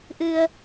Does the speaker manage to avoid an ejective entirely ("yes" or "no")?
yes